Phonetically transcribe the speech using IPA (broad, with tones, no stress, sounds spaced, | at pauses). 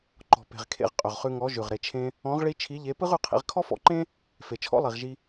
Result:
ǃ ɔ̤˨ p e̤˨ ʁ kʰ ḛ˧ ʁ qʼ ʏ˨ ʁ χ ʉ˧ ŋ ɔ˨˦ ʒ ʉ˨ ʁ ɾ e˨ t͡ʃʰ ẽ˧ | ɔ̃˨˦ ʁ ɭ i˧ t͡ʃʰ i˨˦ ʎ e˨˦ p ɯ˦ ʁ ʉ˧ qʰ ḭ˧ ʁ kʰ ɔ˦ f ɔ̰˧ ǃ ẽ˦ | f e˨ t͡ʃʰ ɔ̰˦ lˠ i˨ ʁ ʒ i˧